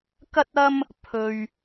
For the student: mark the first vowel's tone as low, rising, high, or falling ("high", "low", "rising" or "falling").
high